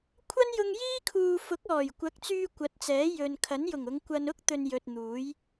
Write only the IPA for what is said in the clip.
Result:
kʷʰ ɐ˥ n j ʊ˧ ŋ j iː˥ kʰ uː˨ f ʊ˨˥ k̚ ɔː˨˩ j kʷ ɐ˨˥ k̚ t͡s yː˧ kʷ ɐ˨˥ t̚ t͡s ɛː˨˥ j ɵ˨ n kʰ ɐ˨˥ n j ʊ˨˩ ŋ ʊ˨˧ ŋ kʷ ɐ˧ n ʊ˥ k̚ t̪ ɵ˧ n j ɵ˨ t̚ n̪ uː˨˥ j

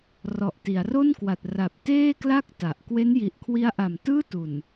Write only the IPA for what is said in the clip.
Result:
r ɔ˨˩ ʔ t i˩˦ a̯ r o˥˩ n k w a˨˩ t̚ r a˨˩ p̚ t eː˥˩ k l a˥˩ k̚ t a˨˩ ʔ k w e˦˥ n j i˨˩ ʔ kʰ w i˦˥ a̯ ʔ a˨˩ m t ɯː˥˩ t u˨˩ n

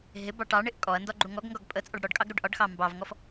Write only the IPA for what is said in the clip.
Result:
ɦ ɪ b ɑ ʈ ɑ ɳ ɪ ʔ kʼ ɔ ɐ̯ n d ɒ ɡ͡ǃ u ŋ ɔ ɡ ŋ ɡ ɒ ɡ pʼ ə t͡sʼ ɒ ɖ ɽ ɔ ɖ kʼ ɑ ɡ ɾ u ɖ ʔ ɒ ɖ x ɑ m b ɑ v ŋ ɔ f

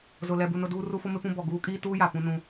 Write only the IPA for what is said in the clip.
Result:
z ʊ˨ l ɛ˨ b u˨ n ʊ˨ d uː˦ r u˦ f o˦ m ɪ˦ p ũ˦ b ɔ˨ ɡ uː˦ kʼ iː˦ t uː˦ j a˨ p ũ˦ n ũ˦

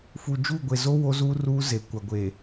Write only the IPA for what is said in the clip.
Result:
f u˨ d͡ʒ uː˦˨ ɡʷ e˨ z o˦ w o˦ z uː˦ r uː˦ z e˨ kʷ a˨ ɡʷ e˨

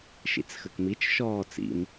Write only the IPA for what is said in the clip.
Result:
ʃ ḭ t͡s x ə k m i t͡ʃ ʃ ɔː t͡s ḭ m

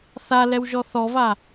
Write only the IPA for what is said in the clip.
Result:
θ a l ɛ w ʒ ɔ θ ɔ v a

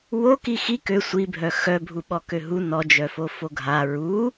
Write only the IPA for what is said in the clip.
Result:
w o k i x i k ø sʷ i bʱ œ x œ bʱ u ɓ ɔ k ø ɦ u n ɔ d͡ʒ œ f o f o ɡʱ a ɹ u

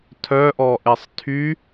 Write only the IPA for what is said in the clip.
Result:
tʰ œ ʔ ɔ ʔ e sˤ tʰ y

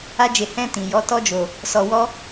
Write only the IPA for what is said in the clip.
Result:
a˦ d͡ʒ e˧ h ɛ̃˧ t ĩ˨ j ɔ˨˦ t ɔ˦ d͡ʒ o˧ | s ɔ˧ w ɔ˦

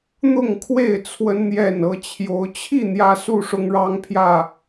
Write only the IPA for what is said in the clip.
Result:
n̪ ʊ˥˨ ŋ kʰ w e˥˨ ɪ̯ t͡sʰ w ə˦ n n̪ j ɛ˥˨ n ɤ˦ t͡ɕʰ j o˨˦ ʊ̯ t͡ɕʰ i˥˨ n̪ j ä˦ s u˥˨ ʂ ʊ˦ ŋ ɻ ɑ˦ ŋ pʰ j ä˥˨

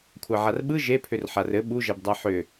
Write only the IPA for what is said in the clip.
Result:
kʷʰ a ʕ a r ɓ ɯ ʒ e pʰ ʏ r ħ a r ɘ ɓ u ʒ ɛ b dˤ a ħ ʏ

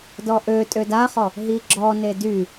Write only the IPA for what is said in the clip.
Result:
d ɔ ʔ ø tʼ ø d a χ ɔ | ɦ i ɡ͡ǁ ɔ n e d y

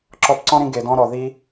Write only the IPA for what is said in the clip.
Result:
ǁ ɔ˦ p ǀ ɔ̃˦ ɾ ĩ˧ ɡ e˨ d ɔ̃˧ ɾ ɔ˨ ð i˦

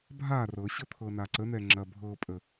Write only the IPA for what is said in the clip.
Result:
bʱ a r ɤ ɕ ɤ t̪ʰ ɤ n a ǀ ə n̪ ɛ ŋ͡ǁ ɐ bʱ ɤ pʼ ə

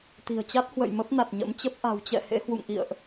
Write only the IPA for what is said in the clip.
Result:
t̪ i̤˨˩ ə̯ t͡ɕ a˦˥ t̚ h w ə̰˧˨ j m ə˦˥ p̚ n a˨˩ t̚ ɲ ə̰˧˥ m t͡ɕ ə˦˥ p̚ ʔ a̤˨˩ w t͡ɕ ɛ̰˧˨ h ḛ˧˥ h w ṵ˧˨ ŋ ʔ ḭ˧˨ ə̯ ʔ

